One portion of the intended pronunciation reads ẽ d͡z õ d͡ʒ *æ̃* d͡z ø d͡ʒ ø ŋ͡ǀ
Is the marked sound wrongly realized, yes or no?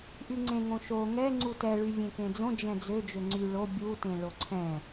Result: yes